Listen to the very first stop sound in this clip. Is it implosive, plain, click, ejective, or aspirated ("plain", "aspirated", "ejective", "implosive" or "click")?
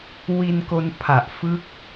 plain